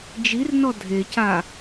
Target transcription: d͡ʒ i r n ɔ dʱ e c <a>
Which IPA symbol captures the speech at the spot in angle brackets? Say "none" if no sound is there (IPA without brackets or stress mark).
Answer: a